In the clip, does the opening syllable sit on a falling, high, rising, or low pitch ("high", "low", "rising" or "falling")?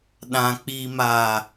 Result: low